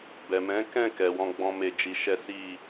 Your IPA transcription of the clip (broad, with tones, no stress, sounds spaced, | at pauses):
b ɛ˨ m ɛ̃˨˦ k ɛ̃˦˨ k ɛ˨ w ɔ̃˧ ɡ͡b ɔ̃˦ m e˦˨ d͡ʒ i˧ ʃ ɛ˦ s i˦˨